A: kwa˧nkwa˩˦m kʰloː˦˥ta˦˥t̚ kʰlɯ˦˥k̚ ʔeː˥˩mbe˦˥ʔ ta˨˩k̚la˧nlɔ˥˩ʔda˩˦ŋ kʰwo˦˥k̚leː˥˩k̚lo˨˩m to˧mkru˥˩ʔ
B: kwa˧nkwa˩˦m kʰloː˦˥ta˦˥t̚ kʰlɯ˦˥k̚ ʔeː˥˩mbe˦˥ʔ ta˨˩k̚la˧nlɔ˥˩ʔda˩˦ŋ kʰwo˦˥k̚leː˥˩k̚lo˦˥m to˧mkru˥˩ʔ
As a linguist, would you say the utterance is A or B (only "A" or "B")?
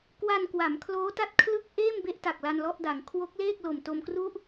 A